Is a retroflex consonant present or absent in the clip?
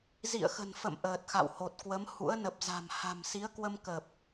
absent